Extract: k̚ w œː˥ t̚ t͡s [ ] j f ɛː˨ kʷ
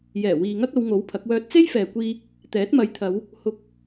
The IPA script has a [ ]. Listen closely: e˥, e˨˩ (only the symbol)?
e˥